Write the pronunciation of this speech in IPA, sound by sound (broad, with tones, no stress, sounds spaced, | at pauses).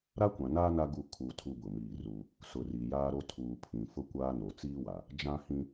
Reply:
ɾ a˦ kʷ ã˨ n aː˦ n a˦ ɡ u˦˨ kʰ u˨ tʰ u˦ b ʊ˨ m iː˦˨ r u˦ | s ʊ˨ r i˨ j aː˦ ɾ o˦ tʰ uː˨ pʰ ĩ˨ f ʊ˦ kʷ aː˦ n o˨ t͡s iː˦ w a˨ | d͡ʒ ã˦ h ĩ˦